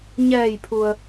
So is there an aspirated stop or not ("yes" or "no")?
yes